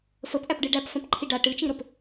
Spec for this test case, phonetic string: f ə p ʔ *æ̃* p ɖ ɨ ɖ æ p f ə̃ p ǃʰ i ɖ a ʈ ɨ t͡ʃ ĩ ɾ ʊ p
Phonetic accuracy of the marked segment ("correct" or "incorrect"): incorrect